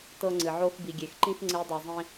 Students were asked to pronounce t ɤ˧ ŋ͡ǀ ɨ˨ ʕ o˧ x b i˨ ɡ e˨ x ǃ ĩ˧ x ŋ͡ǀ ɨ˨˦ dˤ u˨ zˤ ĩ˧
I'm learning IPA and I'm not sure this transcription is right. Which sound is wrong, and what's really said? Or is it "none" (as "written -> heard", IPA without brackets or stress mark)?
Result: ɡ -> ɡʲ